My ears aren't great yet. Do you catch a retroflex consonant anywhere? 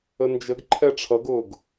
yes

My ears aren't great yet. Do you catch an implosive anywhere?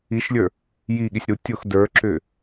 yes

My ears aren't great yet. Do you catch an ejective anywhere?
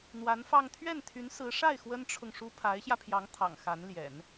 no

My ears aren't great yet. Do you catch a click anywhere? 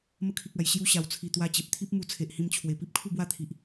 no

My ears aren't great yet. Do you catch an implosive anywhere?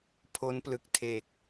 no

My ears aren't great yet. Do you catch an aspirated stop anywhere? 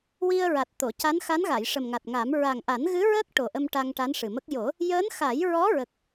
no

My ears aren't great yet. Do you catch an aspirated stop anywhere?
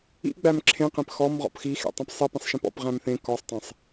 yes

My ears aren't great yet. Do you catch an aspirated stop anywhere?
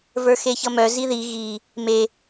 no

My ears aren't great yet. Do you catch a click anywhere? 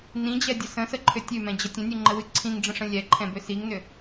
yes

